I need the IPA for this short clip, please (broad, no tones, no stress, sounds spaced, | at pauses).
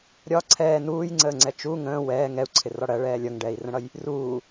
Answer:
ɾʲ ɒ ǀʰ ɛː n uː j ŋ͡ǀ əː ŋ͡ǀ ɛ t͡ʃ u ŋ ə̃ː w ɛː ŋ ɛ u̯ ǀʰ ɪ r ɒ ɽ ɜ ɭ ɛː lʲ ʌ ŋ ɖ ɛː i̯ r ə̃ ɽ ʌ j | r uː